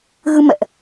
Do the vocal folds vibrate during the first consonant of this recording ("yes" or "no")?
yes